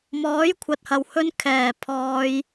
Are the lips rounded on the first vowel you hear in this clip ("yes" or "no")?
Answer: yes